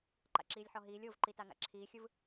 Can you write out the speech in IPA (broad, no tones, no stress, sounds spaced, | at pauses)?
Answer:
ǃ a̰ ǁ iː lʲ ħ ɔ ɦ iː lʲ o v ǃ i t a ŋ a̰ ǁʰ iː xʲ ɯ v